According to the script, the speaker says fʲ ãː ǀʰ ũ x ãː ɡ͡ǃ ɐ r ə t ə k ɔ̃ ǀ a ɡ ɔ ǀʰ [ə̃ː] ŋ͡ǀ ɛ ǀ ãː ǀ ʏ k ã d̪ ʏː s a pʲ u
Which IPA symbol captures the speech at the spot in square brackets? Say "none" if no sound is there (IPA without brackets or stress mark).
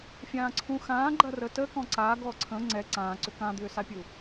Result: ə̃